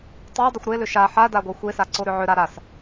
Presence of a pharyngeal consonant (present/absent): present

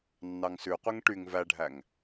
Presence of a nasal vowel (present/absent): absent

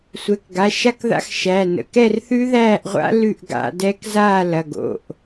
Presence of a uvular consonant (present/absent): present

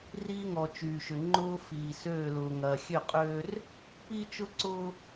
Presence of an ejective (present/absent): present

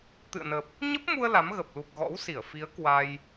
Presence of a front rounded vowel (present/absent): absent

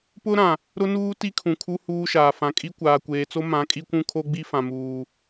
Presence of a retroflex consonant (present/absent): absent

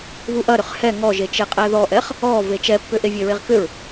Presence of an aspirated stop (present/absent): absent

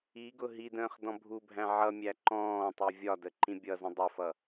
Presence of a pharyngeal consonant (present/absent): present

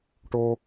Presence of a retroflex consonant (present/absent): present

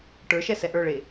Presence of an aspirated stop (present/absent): absent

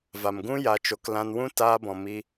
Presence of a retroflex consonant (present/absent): absent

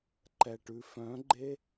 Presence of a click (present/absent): present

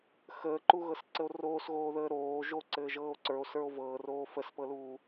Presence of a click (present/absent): present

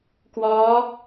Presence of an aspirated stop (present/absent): absent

